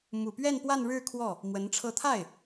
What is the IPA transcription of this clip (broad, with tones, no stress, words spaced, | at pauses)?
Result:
mu˨˩pɥɛ˥˧n pwa˥˧nɻɻ̩˥˧ kʰwɔ˥˩ | mwə˧˥nʈ͡ʂʰɤ˥˧ t̪ʰa˥˩ɪ̯